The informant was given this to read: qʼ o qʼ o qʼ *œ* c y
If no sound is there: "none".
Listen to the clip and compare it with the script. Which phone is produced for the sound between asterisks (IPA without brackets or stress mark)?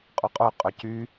œ